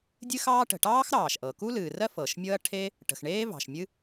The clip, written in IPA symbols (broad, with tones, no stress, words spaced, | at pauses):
dʲɨ˥xɑː˥ ʈə̤˩ʈɑː˥x ɾɑː˩ʃʔɤ˩ ku˥lɨː˩rɜ˥ fɤ˩ʃmʲɤ˥ɐ̯ ʈʰe˥ | ʈə̤˩xɳeː˥vɑ̤˩ʃ mʲɨ˥